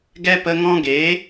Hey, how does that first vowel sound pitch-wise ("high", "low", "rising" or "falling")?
high